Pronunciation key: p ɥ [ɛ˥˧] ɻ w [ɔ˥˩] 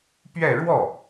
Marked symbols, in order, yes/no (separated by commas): yes, yes